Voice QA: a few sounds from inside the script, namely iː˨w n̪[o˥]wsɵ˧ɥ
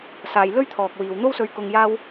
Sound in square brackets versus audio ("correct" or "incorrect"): correct